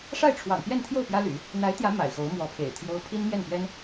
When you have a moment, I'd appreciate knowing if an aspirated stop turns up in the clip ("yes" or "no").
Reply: yes